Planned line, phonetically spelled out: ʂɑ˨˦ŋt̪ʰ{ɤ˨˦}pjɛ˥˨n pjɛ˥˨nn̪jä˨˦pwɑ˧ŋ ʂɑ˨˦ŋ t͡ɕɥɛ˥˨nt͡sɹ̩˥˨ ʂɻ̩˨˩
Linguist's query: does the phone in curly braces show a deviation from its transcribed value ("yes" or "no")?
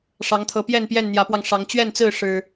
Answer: no